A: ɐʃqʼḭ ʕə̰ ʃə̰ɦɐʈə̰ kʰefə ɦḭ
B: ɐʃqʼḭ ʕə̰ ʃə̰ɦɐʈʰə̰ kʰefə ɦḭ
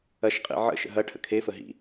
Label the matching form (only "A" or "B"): B